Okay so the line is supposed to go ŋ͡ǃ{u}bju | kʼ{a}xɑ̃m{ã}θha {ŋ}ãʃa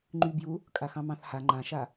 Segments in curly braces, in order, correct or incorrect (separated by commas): incorrect, correct, incorrect, incorrect